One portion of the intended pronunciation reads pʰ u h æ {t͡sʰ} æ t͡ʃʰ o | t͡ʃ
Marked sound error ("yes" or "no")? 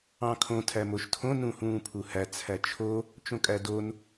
no